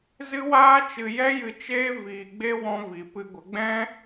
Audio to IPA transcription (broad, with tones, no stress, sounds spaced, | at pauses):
z ɨ˦ w aː˦ t͡ʃ ɨ˧ j ɛ˦ j ɨ˧ t͡ʃ eː˦ v iː˧ ɡ͡b e˦ w ɔ̃˦ v i˧ p ɨ˧ ɡʷ ə˨˦ ɡ͡b ɛ̃˦